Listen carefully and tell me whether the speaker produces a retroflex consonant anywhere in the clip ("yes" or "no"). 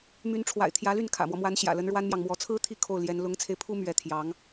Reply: yes